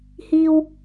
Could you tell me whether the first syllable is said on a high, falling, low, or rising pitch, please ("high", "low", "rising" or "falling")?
high